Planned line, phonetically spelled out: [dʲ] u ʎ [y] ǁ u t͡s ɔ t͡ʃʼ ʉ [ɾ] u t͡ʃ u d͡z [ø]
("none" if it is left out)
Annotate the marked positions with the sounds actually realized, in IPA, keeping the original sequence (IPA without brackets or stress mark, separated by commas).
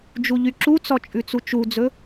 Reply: d͡ʒ, y, t͡s, ɵ